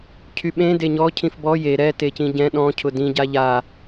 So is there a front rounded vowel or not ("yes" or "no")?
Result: yes